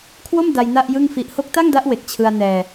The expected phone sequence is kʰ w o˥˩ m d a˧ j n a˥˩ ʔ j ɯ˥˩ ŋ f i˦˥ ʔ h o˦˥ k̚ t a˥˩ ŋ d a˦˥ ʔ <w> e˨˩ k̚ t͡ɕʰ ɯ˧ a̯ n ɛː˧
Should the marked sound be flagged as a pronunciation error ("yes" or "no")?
no